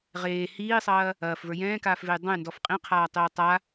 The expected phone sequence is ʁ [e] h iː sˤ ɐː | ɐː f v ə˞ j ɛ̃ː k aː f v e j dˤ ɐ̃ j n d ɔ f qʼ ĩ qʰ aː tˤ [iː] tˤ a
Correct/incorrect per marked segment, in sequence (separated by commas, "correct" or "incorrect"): incorrect, incorrect